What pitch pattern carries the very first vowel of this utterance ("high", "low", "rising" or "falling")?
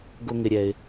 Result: low